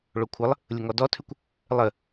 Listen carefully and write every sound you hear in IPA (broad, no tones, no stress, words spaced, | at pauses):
ɭokʷʰəlˠ | lʲʊŋɔdɔtʰʉkʷ | lˠə